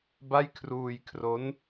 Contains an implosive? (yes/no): no